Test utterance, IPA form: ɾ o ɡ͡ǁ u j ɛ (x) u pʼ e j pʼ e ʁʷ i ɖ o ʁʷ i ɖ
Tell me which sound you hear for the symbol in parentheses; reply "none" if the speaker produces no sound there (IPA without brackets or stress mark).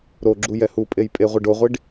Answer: h